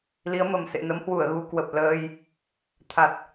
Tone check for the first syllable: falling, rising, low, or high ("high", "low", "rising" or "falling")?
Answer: rising